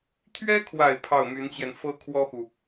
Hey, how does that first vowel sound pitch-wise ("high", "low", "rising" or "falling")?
high